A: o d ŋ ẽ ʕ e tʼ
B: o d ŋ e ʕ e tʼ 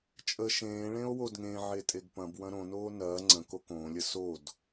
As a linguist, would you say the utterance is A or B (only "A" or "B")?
A